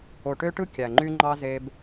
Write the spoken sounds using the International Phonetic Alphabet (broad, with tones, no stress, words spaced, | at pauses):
o˨ʈø˦ʈɯ˦ kʲæ˨ŋ͡ǃy˦ŋ͡ǃɑ˦ ze˦b